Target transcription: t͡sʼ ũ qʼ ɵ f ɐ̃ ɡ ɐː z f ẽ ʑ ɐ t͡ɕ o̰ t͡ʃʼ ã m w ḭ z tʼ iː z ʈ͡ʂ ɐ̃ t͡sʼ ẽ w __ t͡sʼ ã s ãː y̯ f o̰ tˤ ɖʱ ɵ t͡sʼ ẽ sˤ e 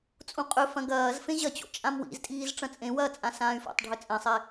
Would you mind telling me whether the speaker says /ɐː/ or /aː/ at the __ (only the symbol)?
ɐː